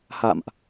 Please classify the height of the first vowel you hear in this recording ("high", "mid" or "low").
low